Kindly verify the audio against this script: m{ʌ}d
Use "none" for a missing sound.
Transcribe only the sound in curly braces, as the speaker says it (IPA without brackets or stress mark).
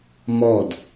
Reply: ɔ